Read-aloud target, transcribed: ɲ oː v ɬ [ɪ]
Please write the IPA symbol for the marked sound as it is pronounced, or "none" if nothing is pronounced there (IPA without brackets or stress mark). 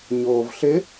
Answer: ɪ